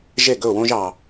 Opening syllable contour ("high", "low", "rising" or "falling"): falling